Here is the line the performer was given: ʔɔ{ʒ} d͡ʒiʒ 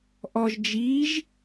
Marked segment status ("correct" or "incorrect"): correct